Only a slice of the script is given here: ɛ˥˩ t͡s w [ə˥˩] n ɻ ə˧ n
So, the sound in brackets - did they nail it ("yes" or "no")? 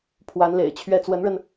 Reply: no